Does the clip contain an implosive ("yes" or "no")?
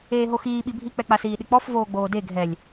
yes